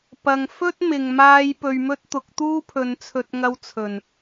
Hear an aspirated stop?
yes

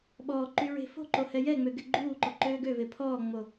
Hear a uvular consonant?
no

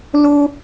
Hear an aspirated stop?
no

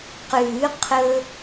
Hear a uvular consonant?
yes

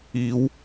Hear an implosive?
no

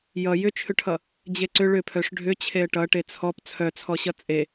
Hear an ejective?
yes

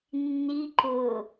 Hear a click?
yes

